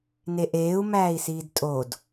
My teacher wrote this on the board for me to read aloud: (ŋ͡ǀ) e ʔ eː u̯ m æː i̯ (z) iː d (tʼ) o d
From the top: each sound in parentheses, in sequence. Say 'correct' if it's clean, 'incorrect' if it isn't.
incorrect, incorrect, correct

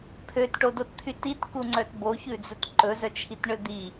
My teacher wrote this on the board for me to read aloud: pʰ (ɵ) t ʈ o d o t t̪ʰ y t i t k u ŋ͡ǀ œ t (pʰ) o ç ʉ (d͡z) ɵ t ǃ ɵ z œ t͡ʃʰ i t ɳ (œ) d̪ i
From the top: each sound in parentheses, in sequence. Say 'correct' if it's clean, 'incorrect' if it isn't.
incorrect, incorrect, correct, incorrect

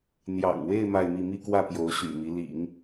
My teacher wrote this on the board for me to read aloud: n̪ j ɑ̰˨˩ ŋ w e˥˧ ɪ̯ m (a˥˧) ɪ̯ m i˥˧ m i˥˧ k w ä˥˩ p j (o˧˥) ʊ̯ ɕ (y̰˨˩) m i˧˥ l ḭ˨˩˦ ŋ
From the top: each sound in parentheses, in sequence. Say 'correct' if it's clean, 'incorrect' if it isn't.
correct, correct, correct

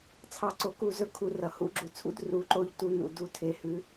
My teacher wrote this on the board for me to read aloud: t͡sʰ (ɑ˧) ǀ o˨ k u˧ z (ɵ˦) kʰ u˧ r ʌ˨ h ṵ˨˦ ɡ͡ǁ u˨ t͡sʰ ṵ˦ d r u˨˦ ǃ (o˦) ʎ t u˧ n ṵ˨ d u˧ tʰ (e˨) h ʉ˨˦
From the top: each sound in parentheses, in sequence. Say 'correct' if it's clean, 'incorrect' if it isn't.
correct, correct, incorrect, correct

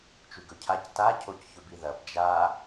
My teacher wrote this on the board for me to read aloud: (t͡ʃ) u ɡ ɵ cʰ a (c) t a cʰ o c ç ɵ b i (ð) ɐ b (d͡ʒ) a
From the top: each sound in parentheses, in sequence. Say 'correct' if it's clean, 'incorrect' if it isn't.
correct, correct, correct, correct

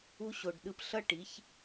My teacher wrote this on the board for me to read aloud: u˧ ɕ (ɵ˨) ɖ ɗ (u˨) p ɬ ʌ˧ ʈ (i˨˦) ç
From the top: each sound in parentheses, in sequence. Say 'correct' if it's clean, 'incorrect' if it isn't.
incorrect, incorrect, correct

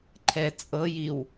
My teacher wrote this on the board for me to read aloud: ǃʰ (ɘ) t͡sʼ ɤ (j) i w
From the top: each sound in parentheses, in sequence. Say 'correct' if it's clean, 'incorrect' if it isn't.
incorrect, correct

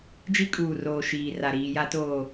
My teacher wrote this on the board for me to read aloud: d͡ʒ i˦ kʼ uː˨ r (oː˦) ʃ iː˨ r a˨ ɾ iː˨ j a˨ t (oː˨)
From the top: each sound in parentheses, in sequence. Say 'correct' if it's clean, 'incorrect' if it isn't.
incorrect, correct

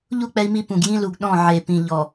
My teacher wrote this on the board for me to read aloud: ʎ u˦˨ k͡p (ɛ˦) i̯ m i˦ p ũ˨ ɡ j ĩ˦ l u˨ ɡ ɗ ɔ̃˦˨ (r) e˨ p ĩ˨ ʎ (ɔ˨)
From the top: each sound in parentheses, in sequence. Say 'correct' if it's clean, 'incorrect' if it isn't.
correct, incorrect, correct

